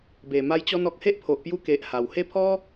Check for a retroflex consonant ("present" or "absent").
absent